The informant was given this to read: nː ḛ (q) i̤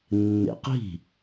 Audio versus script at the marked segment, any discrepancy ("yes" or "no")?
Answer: no